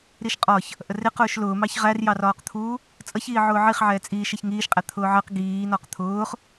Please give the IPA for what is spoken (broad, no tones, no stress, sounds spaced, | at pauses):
ɾ i ʃ qʼ ɒ ç | ʔ ə r ɪ q ʊː ʃ l ʊː m ɑ ç ʁ æ r j ɑ r ɒː q t̪ʰ uː | t͡sʼ ʌ ç iː ʕ ʊː ʕ i χ ʕ ɛː t͡sʼ iː ʃ ɛ ç ŋ iː ʃ qʼ æ t̪ʰ ʊː ʕ ɜ q ɡ iː n ɒ q t̪ʰ ʊː χ